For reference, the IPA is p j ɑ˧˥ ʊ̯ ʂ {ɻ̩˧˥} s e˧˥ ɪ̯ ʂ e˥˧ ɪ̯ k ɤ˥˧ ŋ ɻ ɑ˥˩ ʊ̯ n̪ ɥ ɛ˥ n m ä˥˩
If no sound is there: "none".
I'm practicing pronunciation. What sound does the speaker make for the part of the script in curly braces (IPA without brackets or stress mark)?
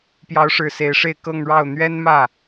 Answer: ɻ̩˨˩